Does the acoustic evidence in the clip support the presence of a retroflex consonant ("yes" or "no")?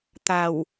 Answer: no